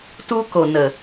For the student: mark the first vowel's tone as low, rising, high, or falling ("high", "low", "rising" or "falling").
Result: high